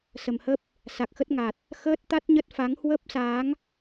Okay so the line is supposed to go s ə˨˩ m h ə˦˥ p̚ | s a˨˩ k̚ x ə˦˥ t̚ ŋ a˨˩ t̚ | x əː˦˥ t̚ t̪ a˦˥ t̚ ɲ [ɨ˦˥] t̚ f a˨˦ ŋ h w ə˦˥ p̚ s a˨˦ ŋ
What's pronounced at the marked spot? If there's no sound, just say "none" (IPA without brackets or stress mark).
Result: ə˦˥